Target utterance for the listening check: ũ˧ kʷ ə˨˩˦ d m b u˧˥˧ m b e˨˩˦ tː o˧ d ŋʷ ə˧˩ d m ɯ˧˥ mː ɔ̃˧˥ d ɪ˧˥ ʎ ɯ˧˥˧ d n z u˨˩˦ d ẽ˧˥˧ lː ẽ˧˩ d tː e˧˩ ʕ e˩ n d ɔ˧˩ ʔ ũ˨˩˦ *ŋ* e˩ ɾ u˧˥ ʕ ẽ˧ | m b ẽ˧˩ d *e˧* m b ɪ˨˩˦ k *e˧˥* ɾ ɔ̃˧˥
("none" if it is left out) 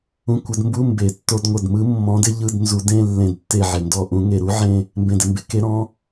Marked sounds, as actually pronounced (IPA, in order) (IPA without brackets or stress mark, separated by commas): ŋ, e˧, e˧˥